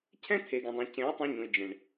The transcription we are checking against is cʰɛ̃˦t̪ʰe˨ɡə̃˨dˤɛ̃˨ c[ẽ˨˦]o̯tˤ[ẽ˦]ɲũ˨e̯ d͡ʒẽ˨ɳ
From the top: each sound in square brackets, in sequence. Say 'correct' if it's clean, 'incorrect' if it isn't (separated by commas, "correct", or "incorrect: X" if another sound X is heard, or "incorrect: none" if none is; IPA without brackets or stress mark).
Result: correct, incorrect: ẽ˧